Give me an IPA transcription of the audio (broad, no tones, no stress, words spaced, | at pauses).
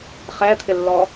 χɛt̪ʰɪlːɔ